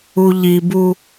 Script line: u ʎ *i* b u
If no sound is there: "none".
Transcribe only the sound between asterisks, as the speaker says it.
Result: i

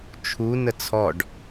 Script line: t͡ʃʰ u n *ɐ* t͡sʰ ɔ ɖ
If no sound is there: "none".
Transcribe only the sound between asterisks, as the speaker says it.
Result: ə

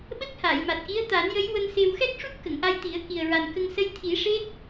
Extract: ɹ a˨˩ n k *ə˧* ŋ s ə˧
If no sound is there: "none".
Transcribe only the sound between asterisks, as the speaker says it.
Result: ə˧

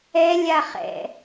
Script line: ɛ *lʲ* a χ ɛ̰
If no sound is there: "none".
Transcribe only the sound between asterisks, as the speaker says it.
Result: lʲ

